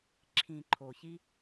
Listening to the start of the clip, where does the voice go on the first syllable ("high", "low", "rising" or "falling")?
low